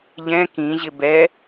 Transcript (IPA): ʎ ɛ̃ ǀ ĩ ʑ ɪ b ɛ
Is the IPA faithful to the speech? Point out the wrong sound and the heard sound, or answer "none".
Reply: ǀ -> k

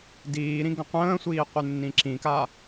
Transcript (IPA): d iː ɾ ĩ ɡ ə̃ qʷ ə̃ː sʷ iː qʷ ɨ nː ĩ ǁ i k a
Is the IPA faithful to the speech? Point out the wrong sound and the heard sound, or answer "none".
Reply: i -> ĩ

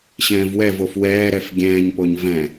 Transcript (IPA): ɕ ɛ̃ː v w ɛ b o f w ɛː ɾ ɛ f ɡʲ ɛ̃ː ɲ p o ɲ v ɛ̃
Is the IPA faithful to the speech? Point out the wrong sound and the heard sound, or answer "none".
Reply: b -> v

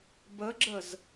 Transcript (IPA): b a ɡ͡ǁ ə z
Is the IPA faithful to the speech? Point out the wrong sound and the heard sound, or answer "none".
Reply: a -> ə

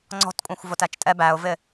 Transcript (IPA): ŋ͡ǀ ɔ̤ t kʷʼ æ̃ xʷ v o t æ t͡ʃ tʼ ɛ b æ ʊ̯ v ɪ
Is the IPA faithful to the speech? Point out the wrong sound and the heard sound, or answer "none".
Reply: none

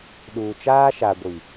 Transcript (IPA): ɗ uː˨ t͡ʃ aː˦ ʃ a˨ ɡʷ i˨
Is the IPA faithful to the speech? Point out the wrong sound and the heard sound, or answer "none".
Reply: none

